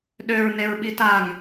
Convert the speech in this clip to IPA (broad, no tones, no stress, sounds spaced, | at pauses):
ɗ ø ɹ n e ɹ ɓ i t a ŋ